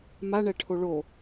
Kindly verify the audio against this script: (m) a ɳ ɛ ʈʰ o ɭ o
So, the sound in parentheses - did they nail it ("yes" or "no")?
yes